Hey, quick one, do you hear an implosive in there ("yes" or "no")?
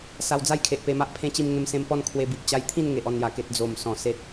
no